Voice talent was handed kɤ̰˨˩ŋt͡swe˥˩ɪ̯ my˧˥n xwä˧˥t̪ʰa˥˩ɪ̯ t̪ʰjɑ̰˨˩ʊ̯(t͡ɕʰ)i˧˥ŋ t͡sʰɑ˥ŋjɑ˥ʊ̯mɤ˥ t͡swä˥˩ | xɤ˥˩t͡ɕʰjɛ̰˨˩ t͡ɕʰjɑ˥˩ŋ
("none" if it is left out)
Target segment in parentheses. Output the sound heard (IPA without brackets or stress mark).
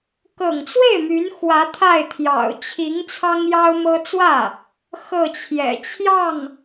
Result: t͡ɕʰ